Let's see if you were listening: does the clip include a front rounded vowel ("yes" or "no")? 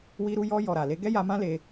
no